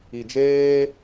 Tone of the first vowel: low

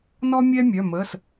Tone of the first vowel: high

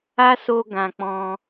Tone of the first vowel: high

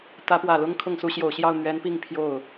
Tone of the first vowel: rising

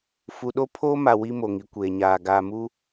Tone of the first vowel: low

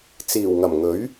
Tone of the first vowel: low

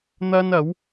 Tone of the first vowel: high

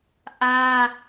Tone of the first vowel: high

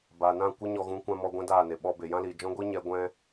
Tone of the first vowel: low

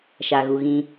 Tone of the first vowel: low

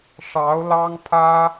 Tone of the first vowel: rising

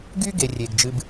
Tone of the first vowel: high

